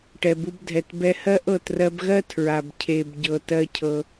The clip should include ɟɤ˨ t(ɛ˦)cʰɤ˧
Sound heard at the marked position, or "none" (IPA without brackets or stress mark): ɜ˦